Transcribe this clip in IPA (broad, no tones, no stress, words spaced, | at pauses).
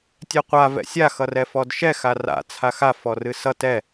tʲɛqʷa vɛ̰sʲa xʌrɛfɔdʃɛ xara̰ t͡sʰaxa fɔrɨsʌ tɛ